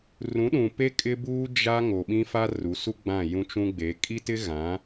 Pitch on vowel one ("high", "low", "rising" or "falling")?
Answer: rising